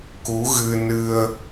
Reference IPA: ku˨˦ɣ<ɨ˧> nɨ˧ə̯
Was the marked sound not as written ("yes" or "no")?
no